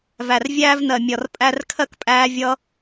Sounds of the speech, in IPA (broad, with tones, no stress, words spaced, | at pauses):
væ˨rvʲæː˦v nɜ˨mʲɒ˨r pʼæ˧rkʰɜ˦kpʼæː˧ vʲʌ˧